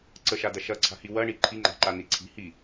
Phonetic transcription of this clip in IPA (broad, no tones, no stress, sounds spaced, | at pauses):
ǀ ə ʃ a d ɐ ʃ ɐ ǀʰ a̤ h i w ɐ ɳ i ǃʰ i ŋ͡ǃ a̤ ǃ a n i ǀʰ i̤ h i